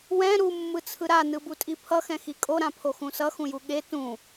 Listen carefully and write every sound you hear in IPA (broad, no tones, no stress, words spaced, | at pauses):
wɛ̃ ɾumːɯt͡sʰɯ ɾanɯbutʼi pʰʌxɛ̃xi kʼoɾãpʰoxũ sʌxũju ɠe tũ